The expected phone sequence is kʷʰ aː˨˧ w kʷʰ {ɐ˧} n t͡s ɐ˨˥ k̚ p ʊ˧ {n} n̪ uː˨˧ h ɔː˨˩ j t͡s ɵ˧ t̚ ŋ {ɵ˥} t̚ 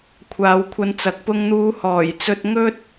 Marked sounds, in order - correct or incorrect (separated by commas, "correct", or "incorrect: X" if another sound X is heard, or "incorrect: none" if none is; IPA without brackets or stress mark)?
correct, incorrect: ŋ, correct